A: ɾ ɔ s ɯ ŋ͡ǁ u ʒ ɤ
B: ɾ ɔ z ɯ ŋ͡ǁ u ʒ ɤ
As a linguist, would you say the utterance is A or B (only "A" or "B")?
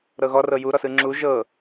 A